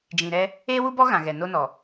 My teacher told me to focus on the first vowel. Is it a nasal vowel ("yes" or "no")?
yes